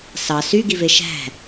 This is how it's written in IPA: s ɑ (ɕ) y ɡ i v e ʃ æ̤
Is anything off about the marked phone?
yes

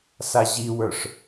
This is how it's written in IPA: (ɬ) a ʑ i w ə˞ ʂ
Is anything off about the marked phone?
yes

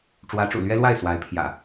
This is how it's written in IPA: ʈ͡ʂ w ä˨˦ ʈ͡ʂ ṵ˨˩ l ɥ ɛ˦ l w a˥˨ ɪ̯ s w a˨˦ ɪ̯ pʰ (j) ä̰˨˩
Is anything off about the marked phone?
no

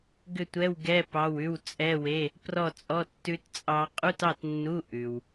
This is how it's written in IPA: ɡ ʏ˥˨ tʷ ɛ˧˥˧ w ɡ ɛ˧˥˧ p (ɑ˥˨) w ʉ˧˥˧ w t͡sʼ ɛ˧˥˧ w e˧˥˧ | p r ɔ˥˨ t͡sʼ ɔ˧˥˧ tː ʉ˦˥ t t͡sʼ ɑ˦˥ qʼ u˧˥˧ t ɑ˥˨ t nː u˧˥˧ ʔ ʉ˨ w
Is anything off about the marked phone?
yes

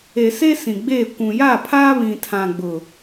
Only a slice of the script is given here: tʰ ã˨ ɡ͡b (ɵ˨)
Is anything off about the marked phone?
yes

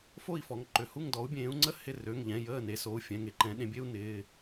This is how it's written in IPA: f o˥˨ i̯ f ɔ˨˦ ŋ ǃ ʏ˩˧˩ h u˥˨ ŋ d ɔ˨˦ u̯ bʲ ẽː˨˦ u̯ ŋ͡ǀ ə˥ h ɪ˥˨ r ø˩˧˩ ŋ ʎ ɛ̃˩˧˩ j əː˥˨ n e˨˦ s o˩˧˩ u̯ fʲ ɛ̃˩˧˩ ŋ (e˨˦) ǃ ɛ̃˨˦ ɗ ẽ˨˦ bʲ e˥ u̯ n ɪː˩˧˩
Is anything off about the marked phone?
no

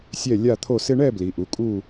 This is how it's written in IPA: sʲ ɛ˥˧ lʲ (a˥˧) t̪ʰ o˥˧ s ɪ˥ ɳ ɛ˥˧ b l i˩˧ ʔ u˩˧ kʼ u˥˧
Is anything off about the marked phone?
no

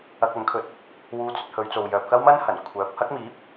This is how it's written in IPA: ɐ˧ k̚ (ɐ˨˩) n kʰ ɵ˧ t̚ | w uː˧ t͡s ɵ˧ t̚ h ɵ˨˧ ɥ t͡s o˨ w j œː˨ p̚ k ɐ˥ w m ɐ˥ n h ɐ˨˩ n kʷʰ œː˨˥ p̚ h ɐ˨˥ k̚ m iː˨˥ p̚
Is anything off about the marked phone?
yes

